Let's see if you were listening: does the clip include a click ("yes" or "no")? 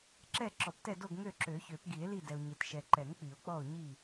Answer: yes